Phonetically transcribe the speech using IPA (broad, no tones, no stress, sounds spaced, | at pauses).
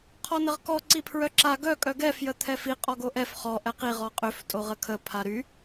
qʰ ɔ n ə ʁ k ɔ ǀ i pʰ ɹ œ ǁ a ɡ œ kʼ œ ɡ ɛ f j ə t̪ʰ ɛ f i qʼ ɔ ɡ o ʔ ɛ f χ ɔ ʔ ɛ q i ʁ ɔ qʼ ø f tʼ o ʁ ə kʰ ə pʰ a ɾ y